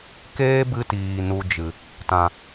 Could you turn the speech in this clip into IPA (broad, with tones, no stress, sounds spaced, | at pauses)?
k eː˦ b ɨ˧ t iː˨ n u˧ d͡ʒ ɨ˨ | t ã˨